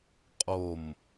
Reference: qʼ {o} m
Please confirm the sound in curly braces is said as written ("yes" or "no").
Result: yes